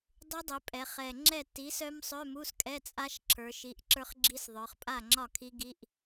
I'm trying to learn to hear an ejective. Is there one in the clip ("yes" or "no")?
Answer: yes